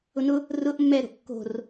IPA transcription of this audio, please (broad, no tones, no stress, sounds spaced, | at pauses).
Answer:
ʊ n ʊ | r ʊ ʔ mː ɛ ɾ o̤ ʔ kː o̤ r